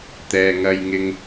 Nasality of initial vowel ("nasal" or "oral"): oral